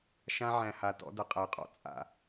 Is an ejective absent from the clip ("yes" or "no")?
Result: no